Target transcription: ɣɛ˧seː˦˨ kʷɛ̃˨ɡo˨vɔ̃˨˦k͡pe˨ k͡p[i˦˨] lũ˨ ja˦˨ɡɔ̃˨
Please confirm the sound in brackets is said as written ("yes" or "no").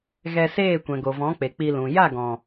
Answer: no